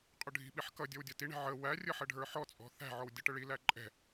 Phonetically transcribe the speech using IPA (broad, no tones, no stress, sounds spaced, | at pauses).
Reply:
qʼ ʊ ɖʱ i̤ ɓ i ħ k ʌ dʲ ʌ w dʲ ʌ t i ɳ ɛ̤ ʕ ə w æ rʲ ə ħ ə ɖʱ ə˞ ħ ɔ t͡sʼ ɔ̤ θ æ̤ ʕ ɔ w dʲ ʌ ʈ ə ɭ i l æ ǃʼ ɛ̤